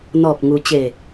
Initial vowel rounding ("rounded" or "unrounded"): rounded